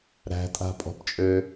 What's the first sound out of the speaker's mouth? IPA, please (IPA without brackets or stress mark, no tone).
ɾ